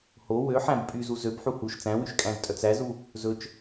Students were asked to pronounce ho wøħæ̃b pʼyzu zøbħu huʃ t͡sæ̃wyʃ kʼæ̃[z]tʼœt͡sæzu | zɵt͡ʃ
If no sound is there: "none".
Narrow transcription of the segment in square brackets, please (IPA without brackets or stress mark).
z